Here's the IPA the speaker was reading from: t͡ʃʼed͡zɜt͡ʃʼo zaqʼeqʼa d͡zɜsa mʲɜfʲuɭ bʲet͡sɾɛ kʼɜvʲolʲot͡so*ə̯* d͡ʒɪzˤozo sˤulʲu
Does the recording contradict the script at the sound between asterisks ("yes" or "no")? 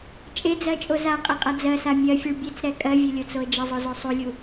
no